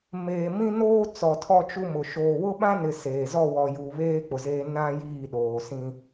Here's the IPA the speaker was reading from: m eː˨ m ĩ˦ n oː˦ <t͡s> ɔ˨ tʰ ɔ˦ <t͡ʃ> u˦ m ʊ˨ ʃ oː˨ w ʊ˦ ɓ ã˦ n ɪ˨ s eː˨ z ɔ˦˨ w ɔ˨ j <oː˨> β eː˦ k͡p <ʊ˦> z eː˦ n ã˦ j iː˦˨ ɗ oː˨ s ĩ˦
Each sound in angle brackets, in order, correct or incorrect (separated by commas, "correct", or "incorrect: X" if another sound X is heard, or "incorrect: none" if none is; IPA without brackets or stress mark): correct, correct, incorrect: uː˨, incorrect: ʊ˨